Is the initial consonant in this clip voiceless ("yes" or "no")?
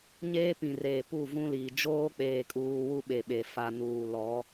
no